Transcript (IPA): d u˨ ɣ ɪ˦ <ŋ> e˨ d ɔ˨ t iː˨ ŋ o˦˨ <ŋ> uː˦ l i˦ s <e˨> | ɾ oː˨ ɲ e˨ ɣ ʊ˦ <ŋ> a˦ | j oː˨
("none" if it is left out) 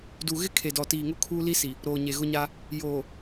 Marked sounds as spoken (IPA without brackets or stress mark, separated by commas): kʰ, kʰ, i˨, ɲ